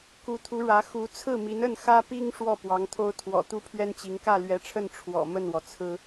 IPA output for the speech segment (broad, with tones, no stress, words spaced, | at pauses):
ku˧˥t̪ʰu˧˥ɻä˧˥ xu˧˥t͡sʰɹ̩˥˩mi˧˥n ə˥˩n xä˥pi˥ŋ ʂwɔ˥˩ pwɑ˧˥ŋt̪ʰo˥ʊ̯ t̪ʰwɔ̰˨˩t̪u˥˩pʰɥɛ˥nt͡ɕi˧˥ŋ kä˥˩lɥɛ˧˥ʈ͡ʂʰə˥˩n ʈ͡ʂʰwɔ̰˨˩ mə˥˩nwɔ˩t͡sʰɹ̩˥